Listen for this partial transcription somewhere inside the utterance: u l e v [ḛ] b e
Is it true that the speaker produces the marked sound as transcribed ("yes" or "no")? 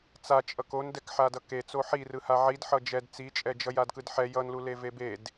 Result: no